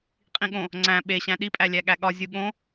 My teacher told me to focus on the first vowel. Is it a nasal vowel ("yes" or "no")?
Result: yes